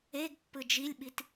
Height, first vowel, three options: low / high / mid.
mid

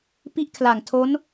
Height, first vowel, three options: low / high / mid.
high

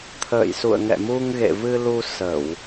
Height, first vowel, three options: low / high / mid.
mid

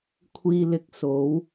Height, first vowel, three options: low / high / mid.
high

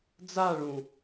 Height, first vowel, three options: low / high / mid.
low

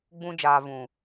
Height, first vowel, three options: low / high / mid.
high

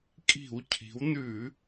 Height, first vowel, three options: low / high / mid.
high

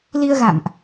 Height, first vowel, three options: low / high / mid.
high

